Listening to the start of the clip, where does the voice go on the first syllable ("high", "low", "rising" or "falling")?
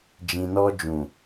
low